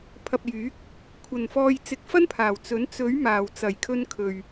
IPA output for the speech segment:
pʰ ɐ˨ p̚ j yː˨˥ k̚ | kʷʰ ɐ˨˩ n f ɔː˨ j t͡s ɪ˨˥ k̚ f ɐ˥ n pʰ aː˨˩ w t͡s ɵ˨˥ n t͡s ɵ˨˥ ɥ m aː˨˩ w t͡s ɐ˨˩ j kʰ ɵ˧ n kʰ ɵ˨ ɥ

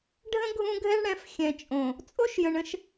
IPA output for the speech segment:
ɖʱ ə̃˦ ɡʱ ũ˦ ɡʱ ɛ˦ ɳ ɽ ɛ̃˨˦ f xʲ ɛ̃˨ t͡ʃʼ õ˨ | t͡sʼ o˦ ʃ j ə̃˨ ɳ ə̃˦ ʃ

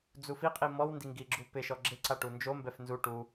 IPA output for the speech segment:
d͡z u f i qʼ i m ɔ w n d i ŋ ɡ i ɡ͡ǁ u p ɪ ʃ ɔ ɡ͡ǁ ɪ ǀ a ʈ u n d͡ʒ o m b ɛ f n z u ʈ u

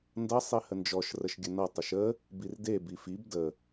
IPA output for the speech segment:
n d ʌ sˤ i h ə n d͡ʒ ɔ ʃ r ə ʃ ɡʲ ə n ʌ tˤ ə ʃ ə | b i r d e b i f i b d ə

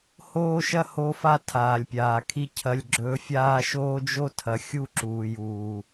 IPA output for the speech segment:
h oː˦ ʃ ɐ˦ h o˦ f a˦ tʰ aː˨ lʲ pʲ aː˨ kʰ i˦ cʰ ɐ˦ lʲ ɡ͡ǁ ɵː˦ fʲ aː˦ ʃ oː˦ d͡ʒ o˦ tʰ ɐ˨ xʲ u˦ ǁ uː˨ j uː˨

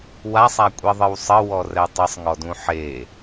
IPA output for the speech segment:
w a sˤ a kʷʼ i ðˤ ɨ w sˤ ɘ w ɔ r ɛ tˤ ɘ sˤ ŋ ɔ d ũ ħ e

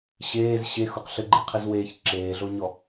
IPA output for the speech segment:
ɕ eː z ɕ e x u q ɬ ɘ ɡ͡ǃ i qʰ i z w eː ç ǁ eː ɮ o ɲ ɔ

